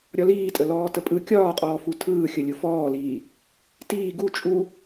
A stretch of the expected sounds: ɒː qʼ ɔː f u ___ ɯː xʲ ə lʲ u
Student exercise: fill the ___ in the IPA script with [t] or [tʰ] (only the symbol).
tʰ